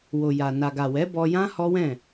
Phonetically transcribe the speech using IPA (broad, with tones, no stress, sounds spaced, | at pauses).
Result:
w o˨ j a˨ n a˨ ɡ a˨ w ɛ˨˦ b ɔ˧ j ã˦ h ɔ˦ w ɛ̃˦˨